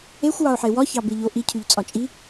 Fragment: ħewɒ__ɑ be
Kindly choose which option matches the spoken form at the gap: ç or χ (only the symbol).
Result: ç